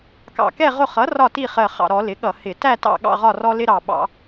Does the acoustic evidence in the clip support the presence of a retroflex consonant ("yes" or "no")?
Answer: no